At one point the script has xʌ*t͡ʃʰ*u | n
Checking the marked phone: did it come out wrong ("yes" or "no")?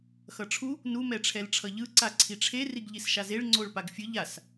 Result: yes